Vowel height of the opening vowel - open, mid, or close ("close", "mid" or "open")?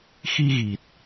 close